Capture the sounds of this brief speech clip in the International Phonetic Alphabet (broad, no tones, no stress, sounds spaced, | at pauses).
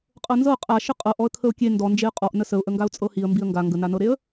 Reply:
qʼ ɤ n z ɤ qʼ a ʃ ə qʼ ɤ ʔ ɔ ə̯ kʰ ə ʊ̯ kʲ e n d ɔ n d͡ʒ e ə̯ qʼ ɔ ʔ n ə s ə ʊ̯ ʔ ə ŋ ɡ a ʊ̯ t͡sʼ ɤ h i ə̯ m b i ə̯ ŋ ɡ a ŋ ɡ ə n a n ɤ ɾ e ə̯